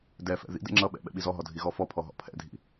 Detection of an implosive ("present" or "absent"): present